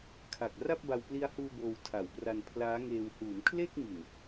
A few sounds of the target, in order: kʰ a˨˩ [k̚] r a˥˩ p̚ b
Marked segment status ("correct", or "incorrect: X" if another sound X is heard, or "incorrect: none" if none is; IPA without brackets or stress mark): correct